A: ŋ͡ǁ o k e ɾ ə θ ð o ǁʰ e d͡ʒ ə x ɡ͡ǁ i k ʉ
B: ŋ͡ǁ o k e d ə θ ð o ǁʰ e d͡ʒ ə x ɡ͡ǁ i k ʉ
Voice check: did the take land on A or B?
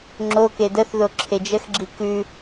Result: B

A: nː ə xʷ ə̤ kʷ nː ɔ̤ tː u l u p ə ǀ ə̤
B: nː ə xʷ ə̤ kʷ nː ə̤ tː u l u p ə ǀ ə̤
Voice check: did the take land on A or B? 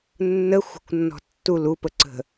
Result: A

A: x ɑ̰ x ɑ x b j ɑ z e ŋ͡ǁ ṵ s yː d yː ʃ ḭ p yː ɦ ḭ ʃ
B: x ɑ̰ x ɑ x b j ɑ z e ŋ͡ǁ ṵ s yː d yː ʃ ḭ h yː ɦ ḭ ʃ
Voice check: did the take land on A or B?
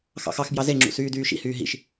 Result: B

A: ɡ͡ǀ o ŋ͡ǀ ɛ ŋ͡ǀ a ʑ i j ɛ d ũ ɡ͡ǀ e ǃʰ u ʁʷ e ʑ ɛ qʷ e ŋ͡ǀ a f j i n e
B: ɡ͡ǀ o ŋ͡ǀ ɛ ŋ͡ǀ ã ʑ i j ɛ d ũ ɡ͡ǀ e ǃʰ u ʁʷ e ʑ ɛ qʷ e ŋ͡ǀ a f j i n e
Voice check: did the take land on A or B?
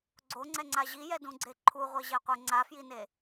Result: A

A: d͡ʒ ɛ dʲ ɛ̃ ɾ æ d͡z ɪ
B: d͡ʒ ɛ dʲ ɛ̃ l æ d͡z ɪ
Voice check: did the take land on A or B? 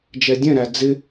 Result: A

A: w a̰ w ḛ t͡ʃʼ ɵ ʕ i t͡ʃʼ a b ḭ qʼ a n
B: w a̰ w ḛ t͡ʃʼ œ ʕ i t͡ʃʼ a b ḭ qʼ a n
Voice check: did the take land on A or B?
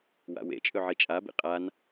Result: A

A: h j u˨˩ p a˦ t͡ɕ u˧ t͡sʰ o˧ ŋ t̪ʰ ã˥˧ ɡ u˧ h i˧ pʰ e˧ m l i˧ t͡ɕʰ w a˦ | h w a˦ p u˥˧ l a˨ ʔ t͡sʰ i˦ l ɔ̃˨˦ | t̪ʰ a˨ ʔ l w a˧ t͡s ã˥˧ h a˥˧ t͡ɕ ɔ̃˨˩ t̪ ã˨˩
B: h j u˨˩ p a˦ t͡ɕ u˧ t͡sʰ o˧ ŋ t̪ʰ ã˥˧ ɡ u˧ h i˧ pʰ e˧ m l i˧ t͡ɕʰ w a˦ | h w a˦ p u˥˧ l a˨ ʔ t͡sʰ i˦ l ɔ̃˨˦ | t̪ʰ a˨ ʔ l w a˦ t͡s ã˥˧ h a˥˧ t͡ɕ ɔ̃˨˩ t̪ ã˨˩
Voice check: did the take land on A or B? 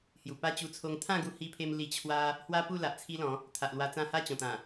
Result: A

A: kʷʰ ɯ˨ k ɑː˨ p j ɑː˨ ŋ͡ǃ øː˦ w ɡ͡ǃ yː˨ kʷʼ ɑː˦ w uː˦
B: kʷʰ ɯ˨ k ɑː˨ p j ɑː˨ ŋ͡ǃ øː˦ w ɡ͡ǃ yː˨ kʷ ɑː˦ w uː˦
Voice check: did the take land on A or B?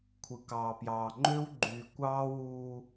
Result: B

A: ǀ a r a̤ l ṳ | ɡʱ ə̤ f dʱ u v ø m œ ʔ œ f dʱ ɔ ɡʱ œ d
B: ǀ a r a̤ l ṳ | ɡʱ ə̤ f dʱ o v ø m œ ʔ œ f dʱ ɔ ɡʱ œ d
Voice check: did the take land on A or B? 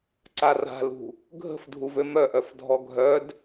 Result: A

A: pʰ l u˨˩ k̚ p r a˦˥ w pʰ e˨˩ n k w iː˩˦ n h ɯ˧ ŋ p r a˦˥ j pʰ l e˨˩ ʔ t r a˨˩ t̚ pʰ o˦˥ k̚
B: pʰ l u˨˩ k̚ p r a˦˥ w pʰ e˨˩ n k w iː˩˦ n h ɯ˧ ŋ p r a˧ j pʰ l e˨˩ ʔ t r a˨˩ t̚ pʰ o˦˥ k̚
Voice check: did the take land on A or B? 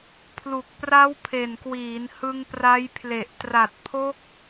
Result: A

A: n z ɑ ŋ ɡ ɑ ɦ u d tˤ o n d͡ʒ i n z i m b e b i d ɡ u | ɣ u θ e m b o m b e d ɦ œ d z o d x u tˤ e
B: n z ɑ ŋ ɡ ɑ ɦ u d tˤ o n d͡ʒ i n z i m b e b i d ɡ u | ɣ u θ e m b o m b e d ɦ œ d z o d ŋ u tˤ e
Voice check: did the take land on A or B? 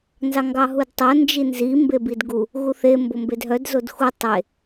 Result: A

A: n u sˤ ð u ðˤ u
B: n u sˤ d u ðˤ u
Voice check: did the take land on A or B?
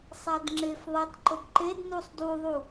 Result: B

